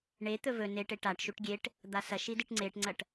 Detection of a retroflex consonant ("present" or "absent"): present